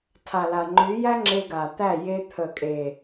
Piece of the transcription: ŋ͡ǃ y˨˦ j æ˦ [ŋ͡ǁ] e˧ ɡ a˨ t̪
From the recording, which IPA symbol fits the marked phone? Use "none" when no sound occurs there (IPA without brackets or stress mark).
ŋ͡ǁ